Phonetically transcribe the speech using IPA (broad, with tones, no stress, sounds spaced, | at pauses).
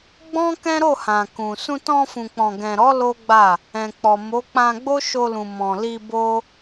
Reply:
ɡ͡b ɔ̃˦ k ɛ̃˦ ɾ o˦˨ h ã˨ k ũ˨ s ũ˧ t ɔ̃˧ f ũ˨ k͡p ɔ̃˨ ɡ ɛ̃˨ ɾ ɔ˨˦ l o˦ ɡ͡b a˦˨ | ɛ̃˨ k͡p ɔ˨ m o˨˦ k͡p ã˧ ɡ͡b o˦ ʃ o˧ l ũ˨ m ɔ̃˨ l i˧ b o˦